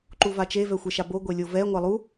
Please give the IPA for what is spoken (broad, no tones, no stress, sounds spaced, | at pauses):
ǃ u v a t͡ʃ e v ɛ xʷ e ʃ a b o ɡʷ e lʲ o v ɛ ŋʷ a lˠ u